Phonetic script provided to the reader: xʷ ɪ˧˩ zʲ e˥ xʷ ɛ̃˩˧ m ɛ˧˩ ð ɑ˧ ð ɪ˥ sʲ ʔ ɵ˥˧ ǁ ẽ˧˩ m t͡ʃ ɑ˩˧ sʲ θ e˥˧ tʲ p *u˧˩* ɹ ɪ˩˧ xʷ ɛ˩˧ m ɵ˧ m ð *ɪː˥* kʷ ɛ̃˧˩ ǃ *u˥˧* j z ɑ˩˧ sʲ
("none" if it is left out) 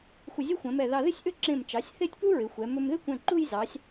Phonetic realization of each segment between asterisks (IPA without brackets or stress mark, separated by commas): u˥, ɪ˥, u˥˧